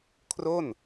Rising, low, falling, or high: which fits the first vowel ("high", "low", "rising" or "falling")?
falling